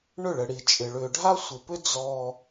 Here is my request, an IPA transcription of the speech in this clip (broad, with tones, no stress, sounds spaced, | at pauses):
ɳ ʏ˦˨ ɭ ə˨ ɽ i˨ t͡ʃʼ ɪ˨ ɭ ʏː˨ ɖʱ a˦ sʷ ɪ˨ p ʏ˦ d͡z ɔː˦